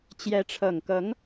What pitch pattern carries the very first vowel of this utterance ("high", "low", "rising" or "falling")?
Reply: rising